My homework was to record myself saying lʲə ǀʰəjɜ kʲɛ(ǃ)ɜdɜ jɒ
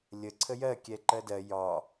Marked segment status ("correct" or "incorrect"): correct